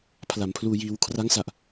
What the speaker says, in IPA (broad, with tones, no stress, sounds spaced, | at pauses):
pʰ l a˩˦ m pʰ l uː˧ j iː˧ w kʰ r a˦˥ ŋ s a˨˩ ʔ